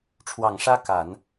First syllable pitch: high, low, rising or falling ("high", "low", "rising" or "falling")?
low